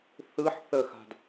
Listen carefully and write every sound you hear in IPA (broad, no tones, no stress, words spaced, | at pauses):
θɯħ θəxa̤d